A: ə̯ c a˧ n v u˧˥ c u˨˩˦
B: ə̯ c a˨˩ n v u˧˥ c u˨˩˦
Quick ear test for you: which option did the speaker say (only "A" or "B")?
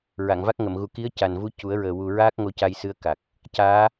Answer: B